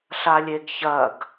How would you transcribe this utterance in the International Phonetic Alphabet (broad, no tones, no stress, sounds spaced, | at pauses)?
ɬ a lʲ e ɡ ç ɐ ɡ